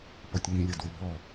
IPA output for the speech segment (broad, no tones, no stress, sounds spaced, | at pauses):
p ɔ tʲ ŋ ĩ lʲ ʌ d w ɪ b ɔ